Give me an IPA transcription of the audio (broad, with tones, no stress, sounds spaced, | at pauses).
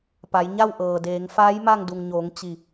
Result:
p a˩˧ j ɲ a˥˨ w ʔ ɤː˩ d eː˩˧ ŋ f aː˧˥ j m a˥˨ ŋ d u˩ ŋ ɲ oː˩˧ ŋ t͡ɕ i˧˩